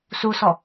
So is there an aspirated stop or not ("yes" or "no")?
no